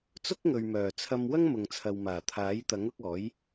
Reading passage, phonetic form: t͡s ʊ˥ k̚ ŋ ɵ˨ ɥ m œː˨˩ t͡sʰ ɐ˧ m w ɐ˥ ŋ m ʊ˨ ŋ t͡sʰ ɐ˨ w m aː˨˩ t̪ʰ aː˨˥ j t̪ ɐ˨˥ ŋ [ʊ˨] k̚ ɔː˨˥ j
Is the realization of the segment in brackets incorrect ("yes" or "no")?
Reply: yes